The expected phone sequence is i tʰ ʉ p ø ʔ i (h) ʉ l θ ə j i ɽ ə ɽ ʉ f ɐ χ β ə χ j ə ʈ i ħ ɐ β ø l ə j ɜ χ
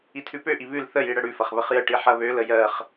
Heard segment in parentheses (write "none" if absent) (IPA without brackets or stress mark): β